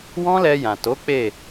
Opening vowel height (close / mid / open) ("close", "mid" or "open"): mid